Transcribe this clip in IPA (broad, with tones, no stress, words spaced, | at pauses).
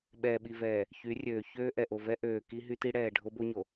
ɓɛː˨ɓi˨vɛː˨ | çy˨˦rʲøː˨çøː˦ ʔɛ˨ʔo˨vɛ˦ ʔøː˨ki˦ɦy˦ti˦ ɽɛː˨ɖʱo˦bo˦ ɲo˨